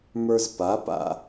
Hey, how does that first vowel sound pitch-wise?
high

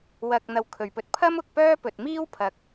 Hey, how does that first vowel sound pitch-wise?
low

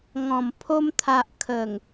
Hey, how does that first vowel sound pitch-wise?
low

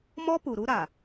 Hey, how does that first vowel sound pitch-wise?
high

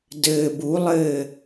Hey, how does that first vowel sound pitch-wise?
low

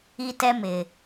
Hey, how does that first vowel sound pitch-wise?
high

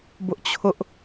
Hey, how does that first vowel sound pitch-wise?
high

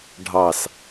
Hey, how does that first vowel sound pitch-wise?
low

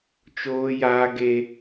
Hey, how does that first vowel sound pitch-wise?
high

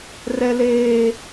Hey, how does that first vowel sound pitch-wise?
high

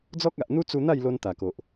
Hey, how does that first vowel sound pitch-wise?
high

